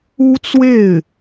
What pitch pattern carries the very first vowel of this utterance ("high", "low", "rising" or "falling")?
high